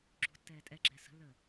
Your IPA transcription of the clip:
ɡ͡ǁṳtːɛː tʼɛɡ͡ǁɛː sə̤lːəː

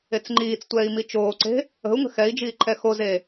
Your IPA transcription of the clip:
et͡sŋ͡ǃiːt͡stʷɛːi̯ mit͡ʃoːǀe̤ | ə̤u̯ŋə̤ xɛi̯d͡ʒiː ǃʰɛxoze

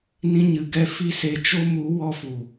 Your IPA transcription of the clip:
nĩ˧ɲɨ˨ɡɛ˧ fi˦se˧t͡ʃo˦ mu˨˦ wɔ˧fu˨

